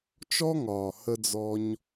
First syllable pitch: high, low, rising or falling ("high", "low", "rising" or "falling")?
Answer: high